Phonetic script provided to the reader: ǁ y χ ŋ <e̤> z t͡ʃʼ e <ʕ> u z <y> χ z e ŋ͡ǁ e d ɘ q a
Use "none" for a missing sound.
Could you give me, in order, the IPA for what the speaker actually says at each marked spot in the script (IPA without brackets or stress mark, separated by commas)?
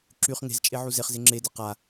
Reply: e̤, ʕ, e